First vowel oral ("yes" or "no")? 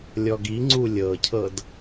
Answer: yes